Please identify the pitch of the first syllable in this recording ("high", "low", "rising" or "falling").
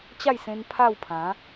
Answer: falling